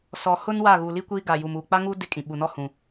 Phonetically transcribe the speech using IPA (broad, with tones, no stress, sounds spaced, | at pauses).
s ɔ˨ h ʊ˦ n w a˦˨ ɣ u˨ l i˦ kʷ iː˦ ɡ a˨ j u˨ m uː˨ k͡p a˦ ŋ u˦ d ɪ˦ kʼ ĩ˨ ɓ u˨ n ɔ˦ h ũ˨